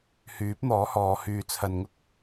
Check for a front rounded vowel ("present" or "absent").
present